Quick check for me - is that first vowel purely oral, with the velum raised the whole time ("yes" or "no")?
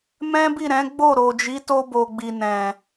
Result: no